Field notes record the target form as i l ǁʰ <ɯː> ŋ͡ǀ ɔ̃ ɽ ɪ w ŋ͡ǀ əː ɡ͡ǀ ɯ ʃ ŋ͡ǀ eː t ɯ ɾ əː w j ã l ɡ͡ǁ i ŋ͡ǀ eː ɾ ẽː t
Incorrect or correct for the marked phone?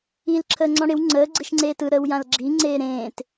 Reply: incorrect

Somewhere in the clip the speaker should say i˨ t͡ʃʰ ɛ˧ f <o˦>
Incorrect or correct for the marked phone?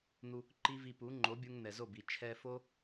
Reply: correct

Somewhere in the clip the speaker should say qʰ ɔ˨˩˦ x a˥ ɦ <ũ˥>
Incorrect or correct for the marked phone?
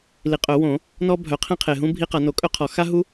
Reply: incorrect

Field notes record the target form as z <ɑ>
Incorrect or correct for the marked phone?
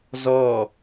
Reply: incorrect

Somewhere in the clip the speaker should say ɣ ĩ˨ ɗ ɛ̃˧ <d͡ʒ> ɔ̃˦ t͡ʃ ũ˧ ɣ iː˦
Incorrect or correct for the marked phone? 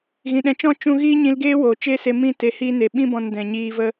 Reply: incorrect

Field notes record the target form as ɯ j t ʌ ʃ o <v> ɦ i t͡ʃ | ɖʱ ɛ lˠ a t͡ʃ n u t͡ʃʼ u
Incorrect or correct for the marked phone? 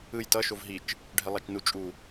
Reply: correct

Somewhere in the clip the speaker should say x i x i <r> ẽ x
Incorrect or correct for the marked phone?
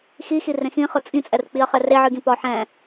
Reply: correct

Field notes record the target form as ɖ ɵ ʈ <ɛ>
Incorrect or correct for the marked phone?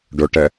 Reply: correct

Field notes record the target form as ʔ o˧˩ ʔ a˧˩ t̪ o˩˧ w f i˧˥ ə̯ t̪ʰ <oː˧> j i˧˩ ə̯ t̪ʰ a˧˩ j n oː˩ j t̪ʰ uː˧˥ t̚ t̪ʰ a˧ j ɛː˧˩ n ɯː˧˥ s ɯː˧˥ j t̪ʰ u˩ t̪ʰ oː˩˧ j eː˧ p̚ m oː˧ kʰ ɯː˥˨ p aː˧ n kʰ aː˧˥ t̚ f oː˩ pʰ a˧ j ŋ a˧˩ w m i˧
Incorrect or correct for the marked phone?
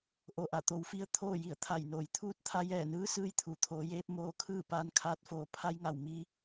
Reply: incorrect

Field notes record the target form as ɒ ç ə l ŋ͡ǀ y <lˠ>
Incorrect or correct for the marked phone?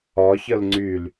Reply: incorrect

